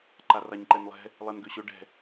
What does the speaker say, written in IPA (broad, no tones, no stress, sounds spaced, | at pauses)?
ǃ a r a ɲ ǃ ɛ n lˠ ɛ̤ | lˠ ɛ n ɡ ø ɕ ɵ ɖ ɛ̤